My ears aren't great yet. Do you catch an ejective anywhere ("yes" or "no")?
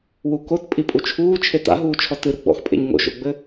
yes